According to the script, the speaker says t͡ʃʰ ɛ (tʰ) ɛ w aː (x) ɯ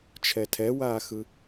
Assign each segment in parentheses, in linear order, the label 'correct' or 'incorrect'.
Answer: correct, correct

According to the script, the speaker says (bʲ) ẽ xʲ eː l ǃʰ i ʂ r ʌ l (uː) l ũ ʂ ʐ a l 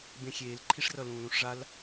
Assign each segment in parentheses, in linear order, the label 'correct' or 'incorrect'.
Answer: incorrect: b, incorrect: ũː

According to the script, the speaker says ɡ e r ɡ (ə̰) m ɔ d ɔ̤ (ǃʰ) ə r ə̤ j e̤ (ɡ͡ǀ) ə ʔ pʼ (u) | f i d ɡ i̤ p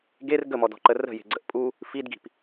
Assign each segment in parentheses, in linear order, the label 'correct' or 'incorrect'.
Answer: incorrect: ə, incorrect: ǃ, correct, correct

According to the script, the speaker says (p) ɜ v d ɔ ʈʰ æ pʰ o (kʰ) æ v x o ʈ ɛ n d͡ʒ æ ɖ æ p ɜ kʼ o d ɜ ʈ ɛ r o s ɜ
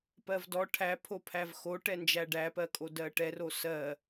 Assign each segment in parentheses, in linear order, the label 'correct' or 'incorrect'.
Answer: correct, incorrect: pʰ

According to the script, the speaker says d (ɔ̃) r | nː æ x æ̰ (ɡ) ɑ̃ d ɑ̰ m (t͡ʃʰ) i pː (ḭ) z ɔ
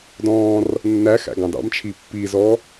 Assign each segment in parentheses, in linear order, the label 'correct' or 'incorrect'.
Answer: incorrect: ɔ̃ː, correct, correct, incorrect: i

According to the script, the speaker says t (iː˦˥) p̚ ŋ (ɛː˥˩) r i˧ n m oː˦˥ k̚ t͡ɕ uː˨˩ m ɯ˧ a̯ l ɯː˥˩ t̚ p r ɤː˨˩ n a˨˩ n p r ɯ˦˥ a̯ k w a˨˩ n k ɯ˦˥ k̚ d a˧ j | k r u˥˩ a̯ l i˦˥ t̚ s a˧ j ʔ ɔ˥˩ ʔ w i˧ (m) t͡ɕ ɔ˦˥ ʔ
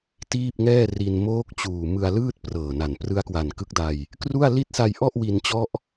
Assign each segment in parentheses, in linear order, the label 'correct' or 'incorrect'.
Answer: incorrect: iː˥˩, correct, incorrect: n

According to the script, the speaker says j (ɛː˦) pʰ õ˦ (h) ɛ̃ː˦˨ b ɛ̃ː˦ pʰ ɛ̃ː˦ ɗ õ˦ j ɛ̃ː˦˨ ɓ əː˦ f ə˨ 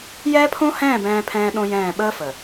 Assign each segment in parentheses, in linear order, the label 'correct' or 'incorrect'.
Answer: correct, correct

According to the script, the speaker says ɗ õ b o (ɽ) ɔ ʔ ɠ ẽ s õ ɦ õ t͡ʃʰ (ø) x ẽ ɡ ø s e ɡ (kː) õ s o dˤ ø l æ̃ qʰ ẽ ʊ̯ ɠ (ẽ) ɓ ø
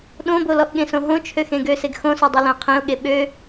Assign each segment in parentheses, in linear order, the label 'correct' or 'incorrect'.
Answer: incorrect: l, correct, incorrect: x, incorrect: e

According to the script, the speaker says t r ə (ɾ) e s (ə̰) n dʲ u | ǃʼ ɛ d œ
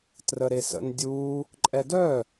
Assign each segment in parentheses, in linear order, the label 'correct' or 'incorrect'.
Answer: correct, correct

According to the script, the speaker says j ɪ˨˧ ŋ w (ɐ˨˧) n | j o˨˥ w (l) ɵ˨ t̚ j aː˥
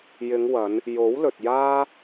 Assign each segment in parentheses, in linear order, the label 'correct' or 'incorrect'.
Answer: correct, correct

